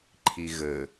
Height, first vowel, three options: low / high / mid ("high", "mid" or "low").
high